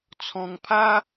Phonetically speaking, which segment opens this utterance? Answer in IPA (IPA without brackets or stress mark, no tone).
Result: t͡sʰ